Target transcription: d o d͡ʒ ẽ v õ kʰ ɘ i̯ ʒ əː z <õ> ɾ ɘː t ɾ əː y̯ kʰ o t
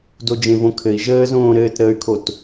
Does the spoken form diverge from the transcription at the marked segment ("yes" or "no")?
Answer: yes